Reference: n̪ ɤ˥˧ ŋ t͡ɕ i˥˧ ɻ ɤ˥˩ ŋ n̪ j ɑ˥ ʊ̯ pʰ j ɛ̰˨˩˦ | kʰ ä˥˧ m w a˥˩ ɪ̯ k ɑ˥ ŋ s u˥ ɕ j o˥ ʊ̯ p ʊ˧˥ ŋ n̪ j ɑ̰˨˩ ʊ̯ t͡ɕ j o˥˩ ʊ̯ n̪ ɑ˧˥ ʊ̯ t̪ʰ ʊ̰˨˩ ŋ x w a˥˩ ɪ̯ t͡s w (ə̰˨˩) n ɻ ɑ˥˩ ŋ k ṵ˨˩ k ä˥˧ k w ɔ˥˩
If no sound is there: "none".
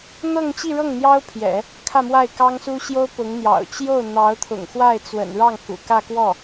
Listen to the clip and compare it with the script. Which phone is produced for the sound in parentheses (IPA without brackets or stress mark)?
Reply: ə̰˨˩